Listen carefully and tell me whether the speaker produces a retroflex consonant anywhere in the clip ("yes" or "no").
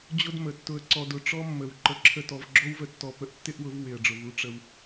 yes